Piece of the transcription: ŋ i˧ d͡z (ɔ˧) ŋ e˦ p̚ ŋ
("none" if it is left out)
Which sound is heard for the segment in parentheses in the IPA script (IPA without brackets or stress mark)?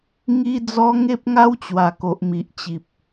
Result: ɔ˧